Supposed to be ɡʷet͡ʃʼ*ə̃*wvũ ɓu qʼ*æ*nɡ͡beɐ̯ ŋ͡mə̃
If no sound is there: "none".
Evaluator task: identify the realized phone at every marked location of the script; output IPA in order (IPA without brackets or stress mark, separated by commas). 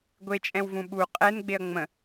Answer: ɛ̃, ɛ